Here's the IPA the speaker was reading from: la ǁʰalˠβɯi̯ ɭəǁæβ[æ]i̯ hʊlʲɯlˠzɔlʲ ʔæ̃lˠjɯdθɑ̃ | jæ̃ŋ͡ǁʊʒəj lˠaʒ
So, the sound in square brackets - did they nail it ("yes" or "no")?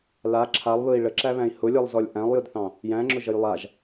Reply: no